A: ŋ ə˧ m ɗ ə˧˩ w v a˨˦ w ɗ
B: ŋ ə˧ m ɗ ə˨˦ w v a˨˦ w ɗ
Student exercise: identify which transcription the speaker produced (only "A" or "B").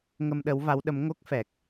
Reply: B